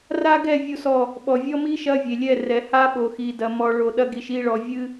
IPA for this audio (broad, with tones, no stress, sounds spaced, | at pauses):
r a˦ ɡ ɛ˦˨ vʲ u˦ s ɔ˦˨ | ɓ ɔ˨ vʲ ɔ˦ m i˦ ʃ ɐ˦ vʲ e˨ lʲ ɛ˦˨ r ɛ˨ h a˦ ɓ o˨ x i˨ d ɐ˨ m ɔ˨ ɭ o˨ ɗ ɐ˦ ɡ i˨ ʃ i˦˨ ɭ ɔ˨ vʲ ɨ˦